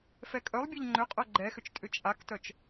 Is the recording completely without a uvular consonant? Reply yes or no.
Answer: no